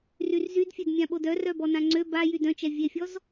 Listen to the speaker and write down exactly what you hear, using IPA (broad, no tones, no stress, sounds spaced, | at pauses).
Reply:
r y r z y d fʲ ø d mʲ ã ɓ o d œ r œ b ɔ n ã ŋ͡ǀ ø b a j y d œ̃ t͡ʃ ɛ vʲ e fʲ ɔ z